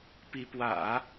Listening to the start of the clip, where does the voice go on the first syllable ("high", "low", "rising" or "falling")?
rising